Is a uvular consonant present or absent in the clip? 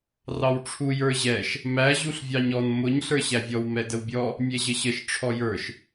absent